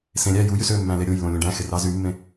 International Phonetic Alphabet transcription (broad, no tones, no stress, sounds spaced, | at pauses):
s ẽ ɾʲ æ j u j y s ø mː æ̃ l e ɾʲ o j l õ lʲ õ ɖ æ̃ x e r ɑ z y mː ẽ